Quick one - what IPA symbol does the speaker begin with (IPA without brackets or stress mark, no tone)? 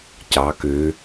c